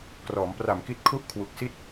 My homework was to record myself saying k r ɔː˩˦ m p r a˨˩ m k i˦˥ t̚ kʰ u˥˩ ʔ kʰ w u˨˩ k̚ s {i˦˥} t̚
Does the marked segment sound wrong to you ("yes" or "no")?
yes